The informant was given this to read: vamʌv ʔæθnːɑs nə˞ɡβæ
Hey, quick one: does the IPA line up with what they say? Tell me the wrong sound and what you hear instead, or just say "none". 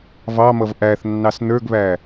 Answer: a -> ɑ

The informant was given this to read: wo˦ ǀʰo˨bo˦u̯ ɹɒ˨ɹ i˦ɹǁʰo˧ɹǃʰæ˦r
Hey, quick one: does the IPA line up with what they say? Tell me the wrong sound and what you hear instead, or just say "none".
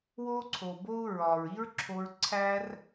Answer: ǃʰ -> ǀʰ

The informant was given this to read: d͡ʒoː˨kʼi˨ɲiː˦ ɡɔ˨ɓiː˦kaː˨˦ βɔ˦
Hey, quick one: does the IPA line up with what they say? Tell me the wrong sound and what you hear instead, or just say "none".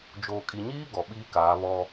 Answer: none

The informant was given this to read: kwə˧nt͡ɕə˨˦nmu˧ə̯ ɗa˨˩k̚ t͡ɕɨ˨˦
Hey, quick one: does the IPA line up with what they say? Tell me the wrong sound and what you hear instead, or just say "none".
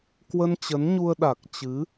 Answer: m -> ɲ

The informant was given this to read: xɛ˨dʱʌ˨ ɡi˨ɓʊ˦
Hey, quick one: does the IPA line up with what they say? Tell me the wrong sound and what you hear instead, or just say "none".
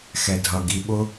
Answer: none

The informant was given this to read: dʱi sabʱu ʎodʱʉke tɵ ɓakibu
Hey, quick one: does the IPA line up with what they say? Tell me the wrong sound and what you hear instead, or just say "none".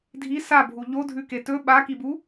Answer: none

